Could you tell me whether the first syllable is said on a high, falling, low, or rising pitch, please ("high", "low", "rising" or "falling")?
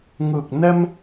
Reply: low